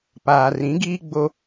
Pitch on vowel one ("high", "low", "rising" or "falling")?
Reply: low